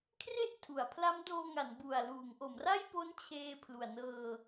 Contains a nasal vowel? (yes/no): no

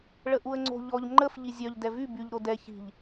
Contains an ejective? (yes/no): no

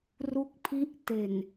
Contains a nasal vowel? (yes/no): no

